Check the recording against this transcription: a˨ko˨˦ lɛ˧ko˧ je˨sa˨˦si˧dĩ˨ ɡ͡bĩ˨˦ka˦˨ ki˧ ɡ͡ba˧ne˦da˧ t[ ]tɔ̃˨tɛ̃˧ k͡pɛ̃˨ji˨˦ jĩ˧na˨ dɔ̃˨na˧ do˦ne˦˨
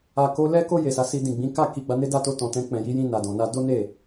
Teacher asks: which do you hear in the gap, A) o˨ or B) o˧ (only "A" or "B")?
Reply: B